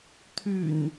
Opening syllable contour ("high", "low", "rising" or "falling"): low